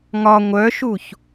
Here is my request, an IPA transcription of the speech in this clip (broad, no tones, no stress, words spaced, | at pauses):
ŋɒ ŋʷœʃuç